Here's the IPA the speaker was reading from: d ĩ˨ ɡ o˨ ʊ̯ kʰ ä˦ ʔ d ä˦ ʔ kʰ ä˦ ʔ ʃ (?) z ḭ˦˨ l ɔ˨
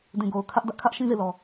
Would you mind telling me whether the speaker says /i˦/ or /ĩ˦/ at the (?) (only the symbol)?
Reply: ĩ˦